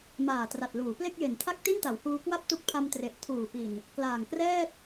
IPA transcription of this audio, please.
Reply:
m aː˨˩ t r a˨˩ t̚ l uː˩˦ p l e˥˩ k̚ j e˨˩ n tʰ a˥˩ k̚ t i˥˩ n t a˩˦ w h uː˧ k w a˥˩ p̚ t u˦˥ k̚ pʰ a˧ m t r e˨˩ ʔ tʰ uː˨˩ p i˨˩ n | k l aː˨˩ ŋ k r ɛː˥˩ t̚

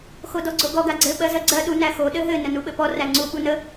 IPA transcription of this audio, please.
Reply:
x o d ɔ ɡ͡ǀ o ɡ ɔ ɡ a ɡ͡ǀ ɘ ɓ ɜ z ɜ ɡ͡ǀ ɜ ɗ u n æ x o ɗ ɘ ɦ ɘ n ə n u ɓ ɘ p ɔ r æ ŋ͡ǀ u ɓ u n ə

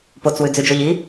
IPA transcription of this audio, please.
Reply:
p o t͡s w ʉ d͡z ʉ d͡ʒ o ʎ i

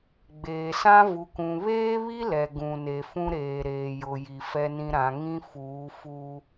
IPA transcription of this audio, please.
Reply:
ɡ͡b eː˨ s ã˦ v u˨ k ũ˨ β eː˦ β i˦ l ɛ˨ ɡ ũ˨ n e˨ f ũ˦ ɾ eː˨ ɾ eː˨ j ʊ˨ j i˨ f ɛ˦ n ĩ˦ ɾ ã˨˦ ŋ ĩ˦ f uː˨˦ f u˦

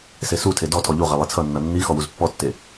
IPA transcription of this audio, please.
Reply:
s e s u tʰ e d ɔ tʰ ɔ ʎ u ʁ e lˠ i t͡sʰ ʌ nː ʌ nː i x ɔ w u z pː ɔ tː e

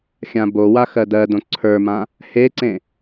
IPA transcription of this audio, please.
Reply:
xʲ ã b o w a x ɜ d ɜ d õ ǀʰ ə˞ m ã | h e ǀ ẽ

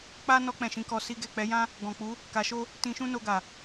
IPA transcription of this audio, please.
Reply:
k͡p a˦ n ɔ˧ k͡p ɛ̃˨ ʃ ĩ˨˦ k ɔ˧ s i˦ ɡ ɛ˦˨ k͡p ɛ˨˦ j ã˦ | ɡ ɔ̃˨ k͡p u˨˦ | k a˧ ʃ o˦ | t ĩ˧ ʃ ũ˦ n o˧ ɡ a˨

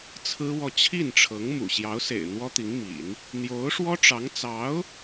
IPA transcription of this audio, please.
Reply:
t͡sʰ ɹ̩˥ w ɔ˥˧ t͡ɕʰ i˥˩ n ʈ͡ʂʰ ɤ˧˥ ŋ m ṵ˨˩ ɕ j ɑ˧˥ ʊ̯ s ḛ˨˩ ɪ̯ n̪ w ɔ˥ t̪ i˧˥ ŋ m ḭ˨˩˦ n | n̪ j o˧˥ ʊ̯ ʂ w ɔ˥ ʈ͡ʂ ɑ˧˥ ŋ t͡s ɑ˧˥ ʊ̯

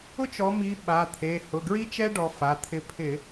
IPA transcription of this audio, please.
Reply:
ʊ˥ t͡ʃ ɔ˨˦ m i˨˦ ɓ a˩˧˩ t̪ʰ e˩˧˩ h ʊ˩˧˩ ɡ ɹ i˥ t͡ʃ ɛ˥ ɖ ɔ˨˦ f a˩˧˩ t̪ʰ ɪ˨˦ pʰ ɪ˧˩˧

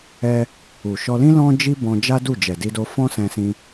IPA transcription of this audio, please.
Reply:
ɛ˦ | u˨ ʃ ɔ˧ l ĩ˦ l ɔ̃˦ d͡ʒ i˦ b ɔ̃˧ d͡ʒ a˦ d u˦˨ d͡ʒ ɛ˨ d i˧ d o˧ f ɔ̃˦ s ɛ̃˧ s ĩ˧

